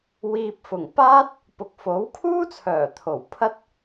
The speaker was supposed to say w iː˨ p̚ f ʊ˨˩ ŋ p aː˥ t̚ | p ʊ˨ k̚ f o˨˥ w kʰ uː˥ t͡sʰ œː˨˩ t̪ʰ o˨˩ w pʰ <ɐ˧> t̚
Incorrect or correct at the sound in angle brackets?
incorrect: ɐ˥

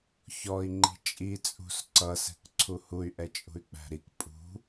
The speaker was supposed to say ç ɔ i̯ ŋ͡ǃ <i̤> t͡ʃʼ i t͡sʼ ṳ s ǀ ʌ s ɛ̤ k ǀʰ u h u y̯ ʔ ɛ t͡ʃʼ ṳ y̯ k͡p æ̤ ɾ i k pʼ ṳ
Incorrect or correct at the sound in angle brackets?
correct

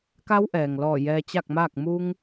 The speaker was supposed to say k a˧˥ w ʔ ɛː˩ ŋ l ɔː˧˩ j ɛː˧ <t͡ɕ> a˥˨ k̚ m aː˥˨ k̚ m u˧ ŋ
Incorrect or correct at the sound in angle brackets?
correct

